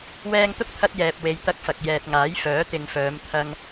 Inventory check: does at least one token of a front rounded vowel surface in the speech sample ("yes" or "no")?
yes